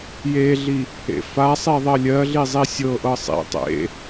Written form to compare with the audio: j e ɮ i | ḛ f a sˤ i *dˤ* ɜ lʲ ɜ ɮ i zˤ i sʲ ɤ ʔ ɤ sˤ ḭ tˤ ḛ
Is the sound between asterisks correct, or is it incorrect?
incorrect